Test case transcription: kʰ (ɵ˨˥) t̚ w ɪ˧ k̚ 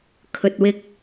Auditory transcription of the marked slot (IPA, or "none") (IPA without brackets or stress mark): ɵ˨